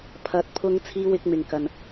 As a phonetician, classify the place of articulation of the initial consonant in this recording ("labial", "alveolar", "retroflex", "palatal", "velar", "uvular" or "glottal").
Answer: labial